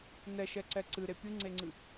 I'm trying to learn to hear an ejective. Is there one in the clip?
no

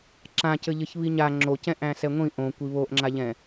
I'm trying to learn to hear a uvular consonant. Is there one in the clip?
no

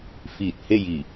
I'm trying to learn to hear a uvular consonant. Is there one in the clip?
no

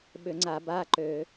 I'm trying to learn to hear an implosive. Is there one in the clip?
yes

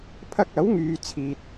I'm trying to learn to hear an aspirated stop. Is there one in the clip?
yes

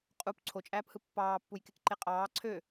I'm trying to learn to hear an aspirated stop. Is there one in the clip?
yes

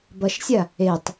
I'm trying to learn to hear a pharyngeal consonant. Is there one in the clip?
no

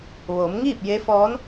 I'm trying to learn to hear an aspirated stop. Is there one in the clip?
no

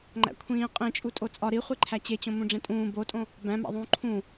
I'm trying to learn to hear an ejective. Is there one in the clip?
yes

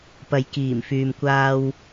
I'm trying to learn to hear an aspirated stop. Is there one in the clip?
no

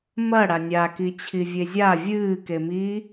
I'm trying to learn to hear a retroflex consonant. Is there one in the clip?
yes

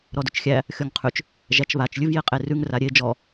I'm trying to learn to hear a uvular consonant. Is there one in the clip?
yes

